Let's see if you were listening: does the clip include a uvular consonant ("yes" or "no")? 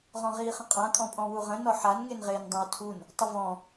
yes